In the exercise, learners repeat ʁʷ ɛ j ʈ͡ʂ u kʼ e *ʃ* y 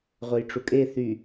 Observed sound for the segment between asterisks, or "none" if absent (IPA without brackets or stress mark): θ